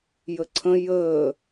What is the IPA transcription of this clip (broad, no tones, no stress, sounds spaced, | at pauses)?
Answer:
j ə ǀʰ ə̃ j əː